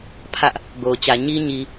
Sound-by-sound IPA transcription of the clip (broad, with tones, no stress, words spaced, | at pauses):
pʰä˦ʔ | ɡo˨ʊ̯t͡ɕä˨ ɲi˦ ɲi˨